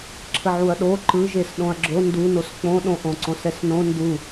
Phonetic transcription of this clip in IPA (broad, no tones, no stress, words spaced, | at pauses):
ǁʰəʕuɐ̯ɗo ǃɯʒes ɗõɐ̯ɡ͡ǁo ndunos k͡põɗõʔõ ǀõsɛsnõ ndu